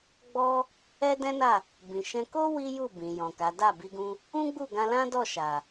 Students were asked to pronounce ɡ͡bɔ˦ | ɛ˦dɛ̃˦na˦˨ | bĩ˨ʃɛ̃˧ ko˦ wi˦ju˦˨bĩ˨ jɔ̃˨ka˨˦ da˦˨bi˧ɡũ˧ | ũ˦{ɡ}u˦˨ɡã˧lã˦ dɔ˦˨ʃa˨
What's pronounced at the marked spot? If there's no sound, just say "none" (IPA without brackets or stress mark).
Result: ɡ͡b